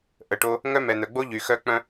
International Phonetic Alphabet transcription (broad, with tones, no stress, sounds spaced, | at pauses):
ʔ ə˨ ʈ o˧ | ŋ œ˦ m ɛ˨ n̪ œ˨ ɡ͡b o˦ ʎ y˨ x œ˦ k͡p œ̃˦